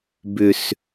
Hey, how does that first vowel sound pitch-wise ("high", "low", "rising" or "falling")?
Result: low